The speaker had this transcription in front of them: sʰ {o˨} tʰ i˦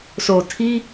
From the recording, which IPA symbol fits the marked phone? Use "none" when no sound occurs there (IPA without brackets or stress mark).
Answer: o˨